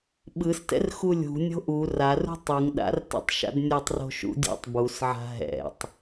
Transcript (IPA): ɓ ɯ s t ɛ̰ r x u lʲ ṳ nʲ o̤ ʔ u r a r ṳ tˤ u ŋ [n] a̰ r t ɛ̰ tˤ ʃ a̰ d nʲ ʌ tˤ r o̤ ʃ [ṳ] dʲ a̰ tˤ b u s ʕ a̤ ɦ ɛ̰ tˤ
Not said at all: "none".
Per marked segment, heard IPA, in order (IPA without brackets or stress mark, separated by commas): ɗ, ṵ